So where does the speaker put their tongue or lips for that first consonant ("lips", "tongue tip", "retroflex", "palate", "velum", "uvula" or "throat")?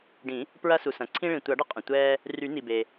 retroflex